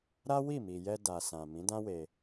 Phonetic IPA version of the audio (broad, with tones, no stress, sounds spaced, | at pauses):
ɾ a˦ w i˦˨ m i˨ j ɛ˧ d a˨ s ã˨ m ĩ˨˦ d ã˦ w e˧